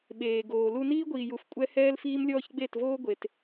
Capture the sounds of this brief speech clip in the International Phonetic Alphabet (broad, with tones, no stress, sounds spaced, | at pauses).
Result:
ɓ eː˨ ɡ oː˨ l u˦ n iː˦ ɡʷ iː˨ j u˨ f kʷʼ ɛ˦ h ɛː˦ l f iː˦ m lʲ ɔː˦ ç ɡ͡b e˦˨ t v oː˦ ɡʷ e˨ t